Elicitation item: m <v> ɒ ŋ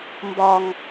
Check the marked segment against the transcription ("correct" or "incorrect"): incorrect